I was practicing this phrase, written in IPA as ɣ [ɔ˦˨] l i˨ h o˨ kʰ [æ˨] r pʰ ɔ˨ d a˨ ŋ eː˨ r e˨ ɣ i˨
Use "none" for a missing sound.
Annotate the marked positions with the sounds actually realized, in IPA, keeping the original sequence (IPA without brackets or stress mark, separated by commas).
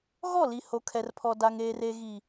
ɔ˦˨, ɛ˨